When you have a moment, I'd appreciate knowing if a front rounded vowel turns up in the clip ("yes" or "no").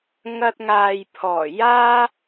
no